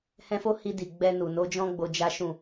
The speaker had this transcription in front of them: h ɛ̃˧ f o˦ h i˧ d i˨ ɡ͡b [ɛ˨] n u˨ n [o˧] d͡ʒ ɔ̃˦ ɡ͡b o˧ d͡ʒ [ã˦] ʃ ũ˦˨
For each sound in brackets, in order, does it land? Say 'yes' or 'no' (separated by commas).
no, no, no